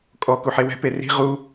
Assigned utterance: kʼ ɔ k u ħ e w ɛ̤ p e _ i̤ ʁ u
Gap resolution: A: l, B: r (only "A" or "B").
B